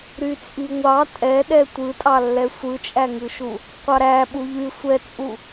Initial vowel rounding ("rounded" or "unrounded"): rounded